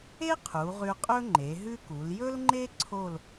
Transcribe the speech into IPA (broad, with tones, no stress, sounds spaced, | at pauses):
e˥ qʰ u˩˧ ʁ ʉ˧ qʼ ɵ˥ ŋ͡ǃ e˩˧ ɦ ʉ˥ k u˩˧ l j ɵ˥ l ŋ͡ǃ e˥ ǀʰ o˥˧ l